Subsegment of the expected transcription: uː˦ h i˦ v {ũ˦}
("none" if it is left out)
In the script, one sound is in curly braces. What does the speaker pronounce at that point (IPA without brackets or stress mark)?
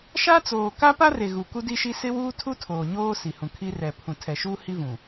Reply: ũ˨